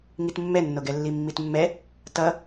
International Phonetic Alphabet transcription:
ŋitmːɛnːoɡɛ lːimːitmːɛ | tʌ

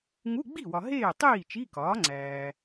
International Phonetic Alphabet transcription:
ŋu˧˥˧ɡ͡bi˥˩wɒ˨ ɦeː˥˩tˤiː˥˩ t͡ʃi˧˥˧kɒː˩˥ŋ͡ǀæː˨

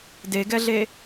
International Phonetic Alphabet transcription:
deɡɛɮe

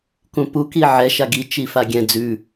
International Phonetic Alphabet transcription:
kũpuki ʕɛʃa ɡi t͡ʃifaɡʲɛ̃ d͡zʉ

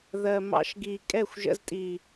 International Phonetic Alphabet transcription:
ðɜ˨mɑ̰˧ʃɡi˨ kʼɛ˦˨xʷʒə̰˧ztʼi˨

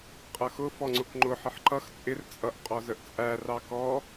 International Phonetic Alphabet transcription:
qʼʌxʊ fɔŋ͡ǀʊkŋ͡ǃʊ ħəħǃʌx t͡sʼɪr t͡sʼʌʔ qʼɔzəʔt͡sʼæ rɑkɔ

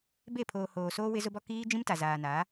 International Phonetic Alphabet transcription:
be˦˨pʰoː˨ hoː˨soː˦ wɪ˦zʊ˦bɔ˦ kiː˦ d͡ʒĩ˦mta˨ zaː˨na˨˦

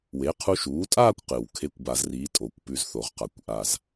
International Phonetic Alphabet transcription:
we˩˥qʰu˧ʃuː˩˥tʼaː˥˧kʷ qɨ˨˩wkʰe˦˥kʷ ba˨˩˦zriː˩˥ tʼo˨˩˦kʷpʉ˧zθo˨˩˦ʁqa˨˩kʷ ʔa˥˧z

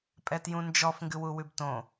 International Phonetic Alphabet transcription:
pʼɛtjũnd͡ʒɔf ŋɡɨwuwʉbtõ

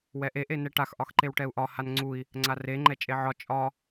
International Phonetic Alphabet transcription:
wɛʔe ʔenɛʈax ʔɒxǃewʈɛu̯ʔɒ hanŋ͡ǀui̯ | ŋ͡ǀare ŋ͡ǃɛt͡ʃʼeʕɒ t͡ʃʼɒ

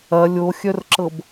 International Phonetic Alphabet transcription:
ɐ lʲoxʲœrǁɤb

